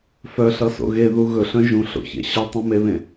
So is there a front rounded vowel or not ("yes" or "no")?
yes